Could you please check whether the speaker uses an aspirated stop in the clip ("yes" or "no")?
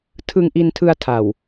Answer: yes